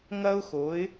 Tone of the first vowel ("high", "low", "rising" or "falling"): high